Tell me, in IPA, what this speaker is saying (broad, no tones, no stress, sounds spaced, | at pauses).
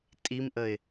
tʼ i m ʔ ə ɪ̯